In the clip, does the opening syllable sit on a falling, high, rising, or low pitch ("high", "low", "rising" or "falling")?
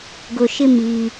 low